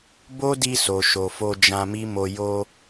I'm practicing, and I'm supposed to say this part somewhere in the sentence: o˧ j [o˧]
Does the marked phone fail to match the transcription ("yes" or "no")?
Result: no